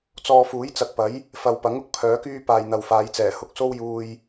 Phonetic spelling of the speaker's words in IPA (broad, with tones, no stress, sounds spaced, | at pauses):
t͡s ɔː˧ f uː˨˥ j t͡s ɐ˨ k̚ p ɐ˨˥ j | f ɐ˨ w p ɐ˨˥ ŋ ʊ˧ k̚ pʰ œː˨˥ k yː˥ p aː˨ j n̪ ɐ˨ w f aː˨˧ j t͡s ɛː˨˩ h ʊ˧ k̚ s o˥ w j uː˧ j